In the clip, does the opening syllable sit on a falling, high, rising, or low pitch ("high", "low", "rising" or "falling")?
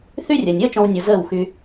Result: high